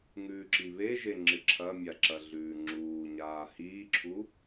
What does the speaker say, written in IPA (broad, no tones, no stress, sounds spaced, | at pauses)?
ŋ ʉː ǁ i β e ʒ e ŋ͡ǁ ɨ ǁʰ ɐ mʲ a ǁ ɐ ɮ ʉː ŋ͡ǁ uː ɲ aː h iː ǁʰ u